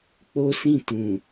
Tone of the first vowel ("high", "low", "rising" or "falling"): high